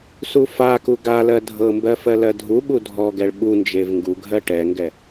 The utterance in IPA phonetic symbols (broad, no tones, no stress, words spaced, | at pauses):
sufaku ɡalɜ dʱɤmbɜ fɜlɜdʱuɓu dʱɔɡɛɭ ɓund͡ʒev ŋɡuɡʱɜ ʈɛŋɡɛ